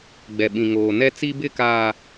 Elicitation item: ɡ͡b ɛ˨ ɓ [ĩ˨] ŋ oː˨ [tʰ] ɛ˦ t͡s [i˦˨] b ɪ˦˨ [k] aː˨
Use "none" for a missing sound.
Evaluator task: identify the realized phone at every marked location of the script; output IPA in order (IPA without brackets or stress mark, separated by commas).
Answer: ĩ˨, n, i˦, k